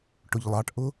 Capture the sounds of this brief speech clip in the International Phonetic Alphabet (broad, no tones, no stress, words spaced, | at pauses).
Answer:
ʈʊʎlˠɑʈʔʊ